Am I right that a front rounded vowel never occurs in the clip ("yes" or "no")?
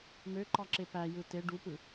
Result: no